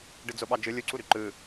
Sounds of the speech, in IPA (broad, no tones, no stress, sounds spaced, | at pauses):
ɖ ɯ d͡z o ɓ ɑ d͡ʒ ɯ lʲ u ǀ u ɾ y ǃ ɯ